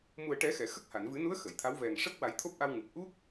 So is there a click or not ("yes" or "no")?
no